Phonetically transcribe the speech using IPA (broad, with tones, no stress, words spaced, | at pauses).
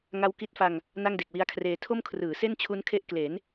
ŋa˦˥wki˦˥t̚fa˧ŋ | na˥˩ŋde˨˩k̚wi˦˥a̯kʰreː˧ tʰo˥˩mkʰrɯː˩˦se˥˩nt͡ɕʰu˦˥n kʰe˦˥ʔkle˩˦n